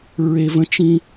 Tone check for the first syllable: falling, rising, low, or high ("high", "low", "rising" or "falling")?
high